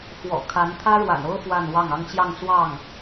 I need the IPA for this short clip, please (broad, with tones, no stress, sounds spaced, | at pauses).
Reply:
x w ɔ̰˨˩ kʰ a˧˥ n t̪ʰ ä˥ ɻ w a̰˨˩ n o˥ ʊ̯ f w a˥˧ n w ɑ˥˩ ŋ ɑ˥ ŋ t͡ɕ j ɑ˥˧ ŋ t͡s w ɑ˥˩ ŋ